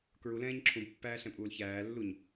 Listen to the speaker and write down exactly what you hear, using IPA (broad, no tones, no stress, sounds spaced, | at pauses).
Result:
k ɹ u l ɛ̃ː ɲ ǁʰ ũ b pː æː ɬ ɛ̃ pʼ uː l ç æː lː u ɲ